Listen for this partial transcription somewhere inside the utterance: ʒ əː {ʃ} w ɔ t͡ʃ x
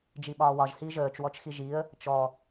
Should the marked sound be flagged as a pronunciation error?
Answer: yes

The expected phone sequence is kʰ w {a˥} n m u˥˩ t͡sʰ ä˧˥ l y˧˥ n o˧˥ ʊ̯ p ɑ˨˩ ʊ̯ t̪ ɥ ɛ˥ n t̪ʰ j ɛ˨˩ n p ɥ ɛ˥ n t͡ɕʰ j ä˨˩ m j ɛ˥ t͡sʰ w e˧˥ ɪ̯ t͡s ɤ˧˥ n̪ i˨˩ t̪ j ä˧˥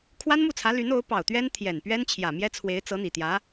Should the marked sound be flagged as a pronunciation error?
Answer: no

